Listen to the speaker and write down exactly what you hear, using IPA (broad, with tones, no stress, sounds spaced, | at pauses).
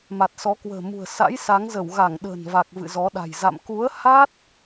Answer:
m a˨˩ t̚ s ɔ˨˦ k w ə̤ː˨˩ m ṳ˨˩ ə̯ s a̰˧˥ j s a˨˦ ŋ z ə˧˩ w ɣ a˧˩ ŋ ɗ ə̤ː˨˩ n v a˨˩ k̚ v ɨ̰˧˨ z ɔ˨˦ ɗ a̤˨˩ j z a̰˧˨ m k u˨˦ ə̯ h a˦˥ t̚